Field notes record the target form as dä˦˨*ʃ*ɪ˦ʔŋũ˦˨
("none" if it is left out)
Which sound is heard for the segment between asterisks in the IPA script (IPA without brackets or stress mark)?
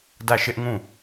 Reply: ʃ